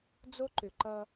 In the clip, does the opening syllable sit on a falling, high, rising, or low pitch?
high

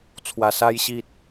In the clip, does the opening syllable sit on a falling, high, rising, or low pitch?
low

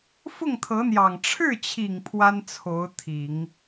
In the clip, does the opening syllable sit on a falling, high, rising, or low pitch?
falling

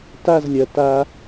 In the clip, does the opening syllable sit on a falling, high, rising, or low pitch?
falling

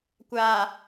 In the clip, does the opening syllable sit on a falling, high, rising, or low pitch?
low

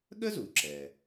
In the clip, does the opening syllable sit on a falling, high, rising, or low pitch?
high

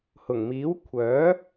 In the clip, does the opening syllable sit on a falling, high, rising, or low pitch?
low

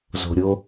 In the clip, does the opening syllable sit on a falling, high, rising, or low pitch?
low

